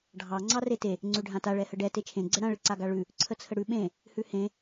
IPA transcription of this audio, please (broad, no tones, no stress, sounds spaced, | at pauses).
ɖʱ ɑ ŋ͡ǀ ɑ r e t e | ŋ͡ǀ ʉ ɖʱ ã t a ɭ ɛ h ə ɖ ɛ t e t͡ʃʰ ẽ ɡ͡ǀ ə ɽ ã ɭ ɪ ǀ a ɡ a ɭ ʉ | ǀʰ ə t͡sʰ ə ɽ ʉ ɓ ẽ | h ʉ h ẽ